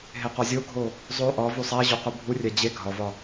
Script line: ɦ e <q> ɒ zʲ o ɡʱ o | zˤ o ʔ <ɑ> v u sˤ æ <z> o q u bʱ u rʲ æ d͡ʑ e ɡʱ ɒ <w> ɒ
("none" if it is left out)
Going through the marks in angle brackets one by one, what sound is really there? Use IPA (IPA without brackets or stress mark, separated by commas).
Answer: q, ɒ, ʑ, v